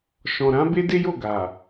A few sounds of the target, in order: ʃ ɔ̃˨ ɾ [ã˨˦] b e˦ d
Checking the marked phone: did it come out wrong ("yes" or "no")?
no